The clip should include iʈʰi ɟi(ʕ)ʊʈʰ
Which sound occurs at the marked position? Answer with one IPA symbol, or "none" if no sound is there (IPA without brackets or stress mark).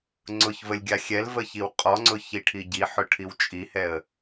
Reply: ħ